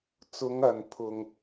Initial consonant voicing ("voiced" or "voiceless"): voiceless